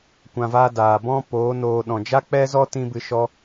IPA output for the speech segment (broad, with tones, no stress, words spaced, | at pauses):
kʷã˧vaː˦ daː˨ bɔ̃˦poː˨˦ noː˧ ɗɔ̃˨d͡ʒa˦k͡pɛ˦zɔ˦ tĩ˦bɨ˧ʃɔ˦